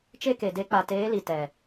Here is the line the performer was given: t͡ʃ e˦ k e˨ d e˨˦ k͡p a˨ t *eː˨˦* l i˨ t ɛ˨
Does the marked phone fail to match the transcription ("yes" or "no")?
no